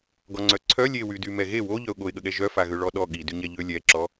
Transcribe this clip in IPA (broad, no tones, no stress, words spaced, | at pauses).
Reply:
ɡɔŋ͡ǀœǀʰœ lʲewydy mɛɣe wo ʎœʊ̯ɠoɪ̯ɠəɠɛ ʒœfaɣø ɭɔɗɔ ɠi dyɲɛʎø lʲɛǁɔ